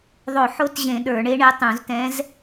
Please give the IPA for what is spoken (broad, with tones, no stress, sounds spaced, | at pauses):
ðˤ o˧˩˧ ħ o˧˥ t ʑ ẽ˧˩˧ ɗ ə˞˧˩˧ ɳ e˧˥ ɳ e˧˥ tˤ ũ˧˩˧ z t ɛ̃˧˥ z